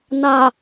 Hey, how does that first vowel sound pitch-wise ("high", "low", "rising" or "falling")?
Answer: low